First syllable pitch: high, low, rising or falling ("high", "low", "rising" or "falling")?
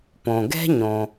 low